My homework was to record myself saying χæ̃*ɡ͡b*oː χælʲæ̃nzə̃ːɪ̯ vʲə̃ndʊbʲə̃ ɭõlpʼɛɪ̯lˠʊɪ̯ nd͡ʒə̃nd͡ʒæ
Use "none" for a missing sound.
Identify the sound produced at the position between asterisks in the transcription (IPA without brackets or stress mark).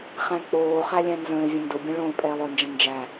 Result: k͡p